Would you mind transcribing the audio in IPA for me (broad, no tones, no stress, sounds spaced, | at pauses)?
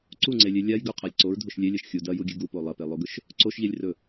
ǀ u ŋ͡ǀ e lʲ e lʲ a j ɡ ɵ qʰ a lʲ ǀ o ɹ dʱ o ʃ lʲ e lʲ ɐ ʃ xʲ u d ɐ j u ɡʲ ɨ ɡ u p o lˠ ɐ p e lˠ o ɡ ɵ ʃ | ǀ o ʃ ʎ e lʲ r ɵ